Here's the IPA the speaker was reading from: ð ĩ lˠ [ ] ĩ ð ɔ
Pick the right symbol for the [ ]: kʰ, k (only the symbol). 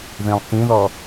k